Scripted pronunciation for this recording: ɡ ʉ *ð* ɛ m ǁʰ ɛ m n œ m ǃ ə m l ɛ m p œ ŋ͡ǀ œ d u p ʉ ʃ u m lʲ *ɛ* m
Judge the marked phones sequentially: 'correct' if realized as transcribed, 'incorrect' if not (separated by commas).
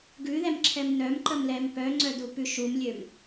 correct, incorrect